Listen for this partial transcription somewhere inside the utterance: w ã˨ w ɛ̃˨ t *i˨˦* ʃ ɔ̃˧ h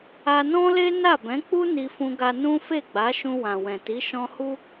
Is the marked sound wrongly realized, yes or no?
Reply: no